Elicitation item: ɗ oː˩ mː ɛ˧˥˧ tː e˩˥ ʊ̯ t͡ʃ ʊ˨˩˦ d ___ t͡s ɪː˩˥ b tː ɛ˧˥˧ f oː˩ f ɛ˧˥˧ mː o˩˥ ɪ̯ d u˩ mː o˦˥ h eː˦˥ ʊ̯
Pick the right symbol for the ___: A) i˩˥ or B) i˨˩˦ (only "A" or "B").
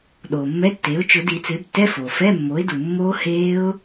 B